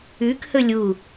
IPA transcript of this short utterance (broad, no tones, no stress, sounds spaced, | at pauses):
ʉ k h ɵ lʲ u